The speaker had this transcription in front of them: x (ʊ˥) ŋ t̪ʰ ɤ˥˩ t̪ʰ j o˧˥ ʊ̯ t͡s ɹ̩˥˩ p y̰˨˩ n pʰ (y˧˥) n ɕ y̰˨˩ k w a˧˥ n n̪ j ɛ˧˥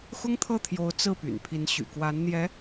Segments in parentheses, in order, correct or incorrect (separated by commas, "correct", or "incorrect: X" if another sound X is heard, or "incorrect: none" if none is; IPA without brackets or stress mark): correct, incorrect: i˧˥